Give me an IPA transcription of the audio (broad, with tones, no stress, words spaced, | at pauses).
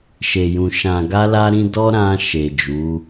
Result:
ʃe˨jũ˨ ʃã˨ɡa˧la˧ ɾĩ˧dɔ˦ ɾã˧ ʃe˨d͡ʒu˨˦